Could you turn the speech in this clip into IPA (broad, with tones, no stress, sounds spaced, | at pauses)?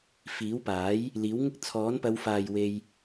f iː˨˥ w p aː˨˥ j | l iː˨˥ w ŋ ɪ˥ k̚ t͡sʰ ɔː˨˥ n p ɐ˨˧ w f aː˨ j w e˧ j